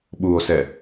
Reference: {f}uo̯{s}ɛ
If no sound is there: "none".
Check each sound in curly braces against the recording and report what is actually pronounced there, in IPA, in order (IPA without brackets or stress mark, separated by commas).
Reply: ɓ, s